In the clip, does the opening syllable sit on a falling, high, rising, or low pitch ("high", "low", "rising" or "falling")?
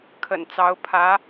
low